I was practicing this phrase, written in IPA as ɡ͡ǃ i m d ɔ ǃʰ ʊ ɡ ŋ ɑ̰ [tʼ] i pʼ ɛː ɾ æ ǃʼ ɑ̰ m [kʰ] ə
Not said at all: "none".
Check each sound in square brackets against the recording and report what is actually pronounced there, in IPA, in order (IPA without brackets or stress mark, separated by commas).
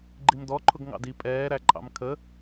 d, kʰ